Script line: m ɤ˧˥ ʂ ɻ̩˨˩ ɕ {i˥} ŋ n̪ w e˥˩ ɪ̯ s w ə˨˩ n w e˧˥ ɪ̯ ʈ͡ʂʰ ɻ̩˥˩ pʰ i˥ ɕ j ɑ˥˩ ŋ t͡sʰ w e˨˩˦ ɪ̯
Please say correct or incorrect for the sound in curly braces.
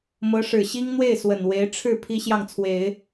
correct